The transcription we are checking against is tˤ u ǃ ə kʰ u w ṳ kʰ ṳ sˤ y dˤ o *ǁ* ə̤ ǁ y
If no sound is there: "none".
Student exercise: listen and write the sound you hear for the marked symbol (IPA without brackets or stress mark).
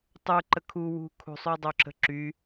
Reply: ǁ